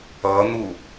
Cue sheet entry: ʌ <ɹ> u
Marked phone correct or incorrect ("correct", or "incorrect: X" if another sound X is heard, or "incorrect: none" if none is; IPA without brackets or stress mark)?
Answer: incorrect: n̪